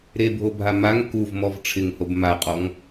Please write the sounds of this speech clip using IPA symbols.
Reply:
ɾ e bʱ o bʱ a m a ŋ k u v m ɔ v ʈ͡ʂʰ ɪ ŋ h o b m a qʼ ɔ ŋ

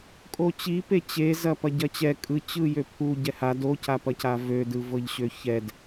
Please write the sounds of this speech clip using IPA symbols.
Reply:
kʼ o t͡ɕ i p e t͡ɕ e z ɐ p ɐ ɟ ɐ t͡ɕ ɛ kʼ ɯ t͡ɕ ɯ j ø pʰ u ɟ ɛ h a d o c a p ɐ c a v ø d ɯ v ɤ ʎ ɕ ø ç ɛ d

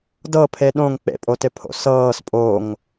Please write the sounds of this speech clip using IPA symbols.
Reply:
d ɤ pʰ e ɗ õ ŋ k͡p ḛ pʼ o t ɪ pʰ o̰ s ɤː s pʼ o ŋ

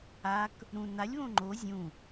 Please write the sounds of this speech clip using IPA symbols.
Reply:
a k | ɾ ũ n a lʲ β õ ŋ͡ǃ o zʲ ũ

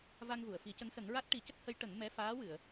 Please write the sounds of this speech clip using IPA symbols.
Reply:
v a˧ ŋ v u˨˩˨ ə̯ f i˨˩˦ c ə˧˥ ŋ s ə˨˩˦ ŋ ɹ a˦˥ t̚ ʈ i˨˩˦ c ə˦˥ k̚ h ə˧˥ j ʈ ə˨˩˦ ŋ m ɛ˧˥ f aː˧˥ w ɨ˨˩˨ ə̯

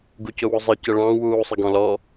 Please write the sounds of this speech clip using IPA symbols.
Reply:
ɡ u c ʊ w ʊ zˤ ɨ c ə ɭ ɑ̃ w uː sˤ ə ɡ ɔ̃ l ɔ

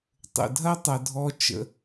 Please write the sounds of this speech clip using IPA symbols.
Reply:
tˤ ə̰˨ dʱ ɐ˦ tˤ ɐ˨ dʱ ɔ˧ t͡ʃ ə̰˧

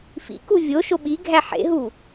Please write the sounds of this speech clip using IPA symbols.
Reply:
f ḭ k u vʲ o ʃ o ɓ i ɡʱ æ ħ ḛ ɦ u

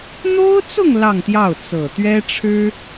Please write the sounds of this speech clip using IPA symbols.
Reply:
n̪ o˥ ʊ̯ t͡s ʊ˥˧ ŋ l ɑ˥˧ ŋ t̪ j ɑ˥˩ ʊ̯ t͡s ɤ˨˩ t̪ ɥ ɛ˥ ʈ͡ʂʰ ɻ̩˥

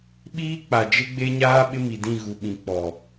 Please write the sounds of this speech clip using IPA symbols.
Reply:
ɓ iː˦ k͡p a˨ d͡ʒ ɪ˦ ɡ͡b e˦ ɲ aː˦ ɓ ɪ˦ m i˨ d ĩ˦˨ ɣ u˨ ɓ ĩ˨ k͡p ɔ˨

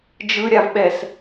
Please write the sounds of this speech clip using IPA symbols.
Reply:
d͡ʒ ɯ ɾʲ a v ɓ ɛ s

